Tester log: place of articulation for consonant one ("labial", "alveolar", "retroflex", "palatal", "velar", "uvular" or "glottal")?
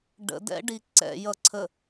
retroflex